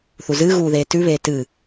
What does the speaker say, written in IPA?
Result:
θ u z ɨ ɣ uː ð eː t ʉ β eː t ɨ

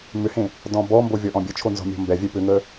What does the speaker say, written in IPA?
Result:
m ʏ h ẽ | d ɔ̃ b ɔ m b o vʲ ɔ ʔ ɔ̃ bʲ ə t͡ʃʰ o n z ɔ̤ mʲ ɔ̤ m b ɛ vʲ ɛ p ʏ ŋ ə

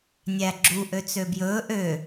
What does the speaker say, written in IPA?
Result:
nʲ æ ɡ͡ǁ u ʔ ø t͡s ø b j ɵː ʔ ø

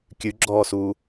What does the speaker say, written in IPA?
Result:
kʲ ʉ ɡ͡ǁ ɔː s uː

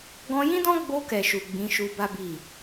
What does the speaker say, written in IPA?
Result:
ɡ ɔ̃˧ j ĩ˦ d ɔ̃˦ ɡ͡b o˧ k ɛ˨ ʃ u˨ ɡ͡b ĩ˨˦ ʃ u˧ b a˦ b i˦˨

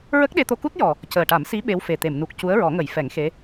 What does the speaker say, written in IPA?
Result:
ɹ ə˦˥ k̚ ɗ e˧ t̪ o˧ k u˦˥ t̚ j ɔ˨˩ | c əː˨˩ ʈ a˨˩˦ m s i˧˥ ɓ e˧˥ w f e˨˩ t̪ e˨˩˨ m n u˨˩ k̚ c u˧˥ ə̯ ɹ ɔ˨˩˦ ŋ ə˨˩˦ j f ɛ˨˩˦ ŋ x e˧˥

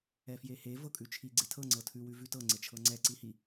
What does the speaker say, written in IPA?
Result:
ɛ f j e h e v ɤ kʼ ʉ t͡ʃʰ i ɡ͡ǀ e tʰ ɤ ŋ͡ǀ ɤ tʰ ʉ w ʉ v ʉ t ɤ ŋ͡ǀ e t͡ʃʰ ɤ ŋ͡ǀ ɛ ǀ i h i

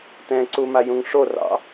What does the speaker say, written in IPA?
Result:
t ɛ̃ ǀ u m a j ũ ŋ ʂ o r ɑ̰

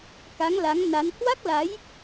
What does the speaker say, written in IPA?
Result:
k a˨˦ ŋ l a˨˦ ŋ n a˨˦ n h w a˦˥ k̚ l a˨˦ j

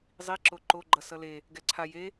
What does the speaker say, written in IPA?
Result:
zˤ i ǁ o ǃ o ɡ͡ǃ ʌ s ʌ l e | ɡ ɛ ǀʰ a j e

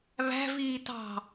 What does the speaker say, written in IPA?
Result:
β æ̤ v iː t ɑ̤

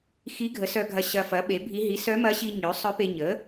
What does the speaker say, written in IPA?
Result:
x i˧˥ ɡʱ ə˩˥ s œ˧ ɡʱ ɐ˧ ɕ ɐ˧ f ɐ˩˥ ɓ e˩˥ bʱ i˧˥ ɦ i˩˥ s œ˧˥ m ɐ˧˥ ɕ i˧ ɲ ø˩˥ sˤ œ˧˥ p e˧ ɲ ə˩˥

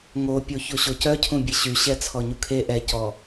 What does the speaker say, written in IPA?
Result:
ŋ o pʲ o ç o ɕ o c œ cʰ ũ bʲ e ɕ y ɕ ɛ t͡sʰ ɔ ɲ u kʰ e ʔ ɛ c ɔ

